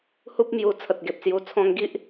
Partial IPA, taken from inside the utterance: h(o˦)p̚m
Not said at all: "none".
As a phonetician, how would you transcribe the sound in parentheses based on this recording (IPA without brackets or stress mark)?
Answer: u˦